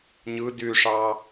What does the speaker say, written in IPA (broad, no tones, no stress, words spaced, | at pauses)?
ɲɯ dyʂɑ